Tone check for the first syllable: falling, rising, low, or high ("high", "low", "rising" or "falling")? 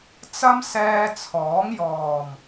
high